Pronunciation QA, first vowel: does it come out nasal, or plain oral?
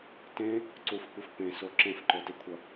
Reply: nasal